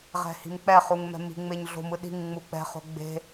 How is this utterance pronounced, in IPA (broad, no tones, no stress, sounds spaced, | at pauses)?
ʁ ɛ̤ h i̤ m k͡p ɛ χ u ŋ m ɛ̤ m i̤ ŋ͡m e ɲ ɮ o̤ m ɯ ɗ i̤ ŋ ŋ͡m u k͡p ɛ̤ χ o̤ ɡ͡b e̤